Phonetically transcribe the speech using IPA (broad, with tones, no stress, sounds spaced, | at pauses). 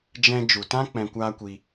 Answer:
d͡ʒ ɛ̃˧ d͡ʒ u˨ t ã˦ k͡p ɛ̃˧ kʷ aː˦ kʷ i˧